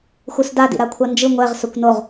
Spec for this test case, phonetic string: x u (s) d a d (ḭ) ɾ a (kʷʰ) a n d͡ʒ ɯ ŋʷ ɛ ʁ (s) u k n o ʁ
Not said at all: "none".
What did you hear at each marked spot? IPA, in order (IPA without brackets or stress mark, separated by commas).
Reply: s, ḭ, kʷʰ, s